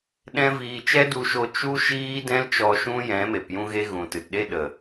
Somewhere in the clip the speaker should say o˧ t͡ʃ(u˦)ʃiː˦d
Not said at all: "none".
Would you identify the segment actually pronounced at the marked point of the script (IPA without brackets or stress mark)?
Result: u˦